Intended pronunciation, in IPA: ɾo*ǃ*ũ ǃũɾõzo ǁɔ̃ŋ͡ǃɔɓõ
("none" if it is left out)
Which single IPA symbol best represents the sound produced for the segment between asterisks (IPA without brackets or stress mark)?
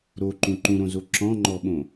ǃ